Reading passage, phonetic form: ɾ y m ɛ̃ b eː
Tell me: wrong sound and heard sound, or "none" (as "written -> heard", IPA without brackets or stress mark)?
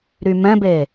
none